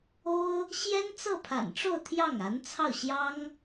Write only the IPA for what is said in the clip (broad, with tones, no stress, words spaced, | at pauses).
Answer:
o˥ʊ̯ | ɕjɛ˥n t͡sɤ˥˩pʰa̰˨˩nʈ͡ʂo˥˧ʊ̯ t̪ʰjɑ˥˩ŋa˧˥nt͡sʰɑ˥˩ʊ̯ ɕjɑ˥ŋ